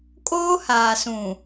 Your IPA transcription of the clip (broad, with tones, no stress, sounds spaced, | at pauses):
kʼ oː˦ h aː˨ s ũ˨